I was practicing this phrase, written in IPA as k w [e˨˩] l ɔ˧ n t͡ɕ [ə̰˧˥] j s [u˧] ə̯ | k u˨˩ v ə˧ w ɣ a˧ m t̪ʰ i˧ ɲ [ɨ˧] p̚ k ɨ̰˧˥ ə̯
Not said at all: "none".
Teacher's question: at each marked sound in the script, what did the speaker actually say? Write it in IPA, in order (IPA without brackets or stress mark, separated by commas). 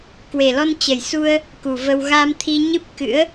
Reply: e˨˩, ə˨˩, u˧, ɨ˦˥